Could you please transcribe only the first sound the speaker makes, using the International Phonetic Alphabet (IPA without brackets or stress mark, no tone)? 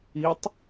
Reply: i